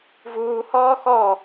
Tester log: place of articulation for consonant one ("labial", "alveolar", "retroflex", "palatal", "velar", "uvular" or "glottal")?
labial